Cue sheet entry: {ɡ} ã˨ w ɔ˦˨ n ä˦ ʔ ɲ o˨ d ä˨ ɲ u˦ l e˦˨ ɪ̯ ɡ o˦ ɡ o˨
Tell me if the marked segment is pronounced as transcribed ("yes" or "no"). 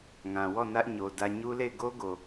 no